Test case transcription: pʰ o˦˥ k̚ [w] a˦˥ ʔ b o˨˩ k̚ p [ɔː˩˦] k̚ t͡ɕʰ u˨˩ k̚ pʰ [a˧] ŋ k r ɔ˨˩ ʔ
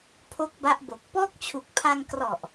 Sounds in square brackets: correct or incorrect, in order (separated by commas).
incorrect, incorrect, correct